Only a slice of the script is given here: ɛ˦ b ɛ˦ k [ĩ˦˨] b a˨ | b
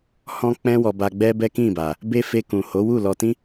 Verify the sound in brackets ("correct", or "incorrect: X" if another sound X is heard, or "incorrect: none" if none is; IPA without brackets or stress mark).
correct